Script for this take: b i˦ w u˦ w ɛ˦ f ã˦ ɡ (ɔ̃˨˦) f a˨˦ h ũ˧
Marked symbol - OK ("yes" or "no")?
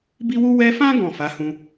no